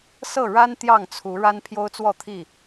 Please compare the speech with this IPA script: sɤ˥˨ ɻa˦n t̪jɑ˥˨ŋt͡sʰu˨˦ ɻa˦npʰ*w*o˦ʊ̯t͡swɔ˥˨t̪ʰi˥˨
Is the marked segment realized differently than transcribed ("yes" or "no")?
yes